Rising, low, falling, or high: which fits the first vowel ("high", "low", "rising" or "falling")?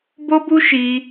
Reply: high